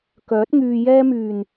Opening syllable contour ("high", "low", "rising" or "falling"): rising